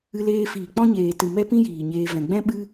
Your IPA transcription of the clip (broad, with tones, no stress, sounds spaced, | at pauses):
ɨ˧ l eː˧ f iː˨ k͡p ɔ̃˦ ɲ eː˨ t ɨ˨ m ɛ˦ p ĩ˦ j iː˨ ɲ eː˧ v ɛ̃˨ ɡ͡b ɛ̃˦ ɓ ɨ˦